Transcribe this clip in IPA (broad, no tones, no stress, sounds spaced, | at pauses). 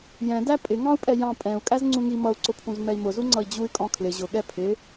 j ɛ̃ d æ pʼ ɪ ŋ ɑ̃ u̯ pʼ ɛ j ɑ̃ pʼ ɛ̃ u̯ kʼ æ z ŋ͡ǀ ũ ŋ i m ʌ u̯ ǀ ʊ pʰ ũ z m ɛ i̯ m ʊ z u ŋ͡ǀ ʌ i̯ d͡ʑ u y̯ kʼ ɔ̃ kʰ l ɪ ʑ ʊ ɠ ɛ pʰ ɪ